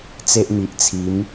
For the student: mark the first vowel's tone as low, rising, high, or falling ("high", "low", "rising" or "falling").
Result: high